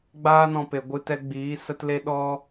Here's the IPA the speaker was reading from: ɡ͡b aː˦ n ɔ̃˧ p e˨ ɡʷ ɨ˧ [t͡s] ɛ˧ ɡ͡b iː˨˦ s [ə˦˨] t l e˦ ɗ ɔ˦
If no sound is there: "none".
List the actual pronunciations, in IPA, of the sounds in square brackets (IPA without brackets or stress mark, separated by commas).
t, ə˦